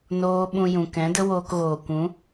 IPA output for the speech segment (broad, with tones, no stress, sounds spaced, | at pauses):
n oː˦ ɓ ũ˧ j ũ˨ k ɛ̃˨˦ d ə˦ w oː˧ k ɣ oː˨ kʷ ũ˨˦